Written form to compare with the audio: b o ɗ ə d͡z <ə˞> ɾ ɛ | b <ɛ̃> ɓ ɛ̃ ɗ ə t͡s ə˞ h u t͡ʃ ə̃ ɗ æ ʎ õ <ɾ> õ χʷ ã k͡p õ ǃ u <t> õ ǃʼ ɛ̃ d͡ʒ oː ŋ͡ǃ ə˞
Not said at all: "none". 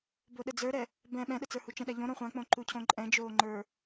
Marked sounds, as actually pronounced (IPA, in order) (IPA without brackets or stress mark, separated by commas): ə˞, ɛ̃, ɾ, cʰ